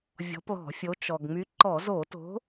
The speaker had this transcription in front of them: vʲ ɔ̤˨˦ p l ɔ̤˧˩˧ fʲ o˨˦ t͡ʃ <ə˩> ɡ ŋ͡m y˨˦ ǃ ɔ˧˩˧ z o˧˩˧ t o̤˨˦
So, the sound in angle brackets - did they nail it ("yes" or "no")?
no